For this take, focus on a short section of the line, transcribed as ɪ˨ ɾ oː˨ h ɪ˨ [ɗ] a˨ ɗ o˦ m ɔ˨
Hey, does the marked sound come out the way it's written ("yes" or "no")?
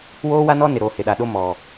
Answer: yes